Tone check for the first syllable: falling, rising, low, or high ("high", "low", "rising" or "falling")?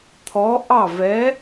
rising